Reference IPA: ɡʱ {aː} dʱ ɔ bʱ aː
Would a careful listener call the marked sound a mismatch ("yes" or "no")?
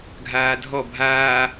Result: no